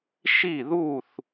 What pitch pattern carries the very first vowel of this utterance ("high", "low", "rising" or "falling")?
falling